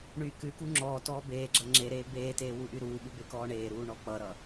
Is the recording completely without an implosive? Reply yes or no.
no